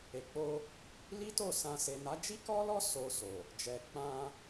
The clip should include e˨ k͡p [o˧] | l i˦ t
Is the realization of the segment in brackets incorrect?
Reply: no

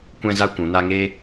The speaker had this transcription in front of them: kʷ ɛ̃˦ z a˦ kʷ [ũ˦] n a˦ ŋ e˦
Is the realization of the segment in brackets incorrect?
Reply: yes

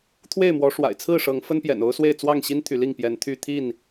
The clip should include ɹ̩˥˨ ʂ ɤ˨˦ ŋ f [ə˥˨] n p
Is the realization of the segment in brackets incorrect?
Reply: yes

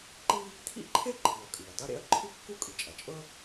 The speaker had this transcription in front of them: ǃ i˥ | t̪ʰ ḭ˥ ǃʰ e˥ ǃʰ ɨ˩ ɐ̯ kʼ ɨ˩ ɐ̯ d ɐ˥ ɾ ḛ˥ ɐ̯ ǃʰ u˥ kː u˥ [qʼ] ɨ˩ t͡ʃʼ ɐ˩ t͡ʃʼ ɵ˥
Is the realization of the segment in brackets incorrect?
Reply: yes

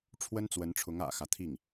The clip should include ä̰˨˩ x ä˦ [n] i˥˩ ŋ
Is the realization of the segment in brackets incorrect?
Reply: yes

